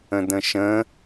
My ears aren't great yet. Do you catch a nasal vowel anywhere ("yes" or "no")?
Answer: yes